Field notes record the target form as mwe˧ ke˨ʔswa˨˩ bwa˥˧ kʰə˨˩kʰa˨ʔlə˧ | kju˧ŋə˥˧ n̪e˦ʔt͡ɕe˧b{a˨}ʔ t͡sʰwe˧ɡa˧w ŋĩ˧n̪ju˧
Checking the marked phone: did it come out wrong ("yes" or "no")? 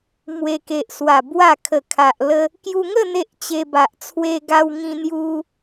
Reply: no